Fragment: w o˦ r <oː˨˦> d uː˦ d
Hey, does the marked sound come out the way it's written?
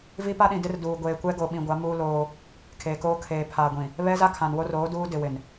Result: yes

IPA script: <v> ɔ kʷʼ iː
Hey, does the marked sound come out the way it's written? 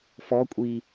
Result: no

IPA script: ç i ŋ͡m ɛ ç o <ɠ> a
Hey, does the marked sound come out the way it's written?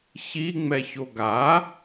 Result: no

